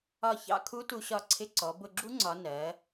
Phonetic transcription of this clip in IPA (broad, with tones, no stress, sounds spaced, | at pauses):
ɒ˧˩ ç ɑ̰˧ kʰ u˧˥ t u˧ ɕ ɒ˧˩ ǀʰ ɪ˧ ǀ ɔ˩˧ b ʊ˧˩ ɡ͡ǁ u˧˥ ŋ͡ǀ ɒ˩˧ n ɜ˩˧